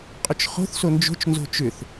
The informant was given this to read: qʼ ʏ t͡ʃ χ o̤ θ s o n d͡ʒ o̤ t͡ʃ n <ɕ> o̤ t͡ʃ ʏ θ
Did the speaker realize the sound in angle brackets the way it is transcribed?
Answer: no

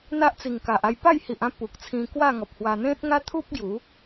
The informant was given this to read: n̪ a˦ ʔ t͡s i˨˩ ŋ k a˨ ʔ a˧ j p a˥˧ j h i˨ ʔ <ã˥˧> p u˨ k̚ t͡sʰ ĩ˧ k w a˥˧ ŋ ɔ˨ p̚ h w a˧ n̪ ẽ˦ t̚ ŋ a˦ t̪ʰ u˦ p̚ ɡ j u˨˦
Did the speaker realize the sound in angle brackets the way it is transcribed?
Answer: yes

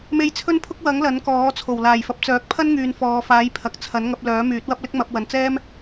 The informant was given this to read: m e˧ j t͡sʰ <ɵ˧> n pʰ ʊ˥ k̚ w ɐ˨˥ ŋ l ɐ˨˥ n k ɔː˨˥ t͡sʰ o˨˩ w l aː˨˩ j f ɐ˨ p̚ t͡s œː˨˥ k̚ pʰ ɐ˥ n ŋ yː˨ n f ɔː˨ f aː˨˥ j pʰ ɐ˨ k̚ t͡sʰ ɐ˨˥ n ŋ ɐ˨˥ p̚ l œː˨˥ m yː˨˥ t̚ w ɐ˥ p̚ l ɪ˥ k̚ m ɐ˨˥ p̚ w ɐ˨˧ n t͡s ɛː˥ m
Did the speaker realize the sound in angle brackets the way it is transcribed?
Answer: no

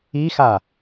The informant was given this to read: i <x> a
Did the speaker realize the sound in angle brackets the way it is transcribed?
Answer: yes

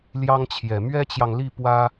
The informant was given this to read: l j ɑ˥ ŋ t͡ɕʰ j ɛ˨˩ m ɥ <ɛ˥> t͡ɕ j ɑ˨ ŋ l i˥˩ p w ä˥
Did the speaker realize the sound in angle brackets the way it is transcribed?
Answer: yes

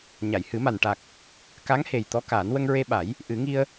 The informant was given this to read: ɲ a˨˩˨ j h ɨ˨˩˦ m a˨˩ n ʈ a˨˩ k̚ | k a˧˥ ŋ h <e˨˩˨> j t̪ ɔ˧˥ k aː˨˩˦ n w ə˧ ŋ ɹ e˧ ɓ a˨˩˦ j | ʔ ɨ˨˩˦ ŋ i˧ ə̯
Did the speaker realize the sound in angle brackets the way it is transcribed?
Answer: no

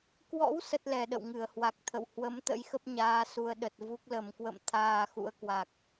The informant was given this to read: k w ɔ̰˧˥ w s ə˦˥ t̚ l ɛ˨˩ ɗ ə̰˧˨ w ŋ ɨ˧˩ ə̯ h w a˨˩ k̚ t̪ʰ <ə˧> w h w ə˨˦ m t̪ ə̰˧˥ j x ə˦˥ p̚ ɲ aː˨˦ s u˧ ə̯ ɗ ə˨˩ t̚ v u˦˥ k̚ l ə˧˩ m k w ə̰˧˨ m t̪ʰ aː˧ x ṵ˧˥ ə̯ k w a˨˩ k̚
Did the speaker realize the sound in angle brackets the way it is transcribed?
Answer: no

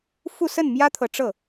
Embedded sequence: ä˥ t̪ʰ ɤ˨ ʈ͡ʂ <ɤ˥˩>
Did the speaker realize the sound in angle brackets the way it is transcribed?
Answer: yes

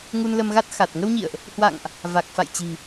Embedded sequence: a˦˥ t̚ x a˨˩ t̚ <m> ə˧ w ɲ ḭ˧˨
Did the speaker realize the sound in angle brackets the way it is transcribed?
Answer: no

